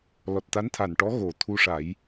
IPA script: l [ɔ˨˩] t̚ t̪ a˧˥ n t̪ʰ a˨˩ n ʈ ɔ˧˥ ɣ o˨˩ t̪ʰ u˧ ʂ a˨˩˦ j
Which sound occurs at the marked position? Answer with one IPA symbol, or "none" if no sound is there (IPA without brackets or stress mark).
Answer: ɔ˨˩